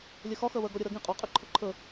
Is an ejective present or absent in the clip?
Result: present